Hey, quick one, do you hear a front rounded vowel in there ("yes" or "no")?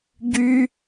yes